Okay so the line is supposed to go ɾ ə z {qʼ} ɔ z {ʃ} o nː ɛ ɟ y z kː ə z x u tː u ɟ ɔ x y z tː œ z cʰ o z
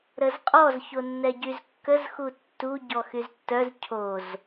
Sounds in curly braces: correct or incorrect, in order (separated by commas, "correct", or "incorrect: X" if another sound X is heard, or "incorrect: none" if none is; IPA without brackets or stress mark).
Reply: correct, incorrect: ç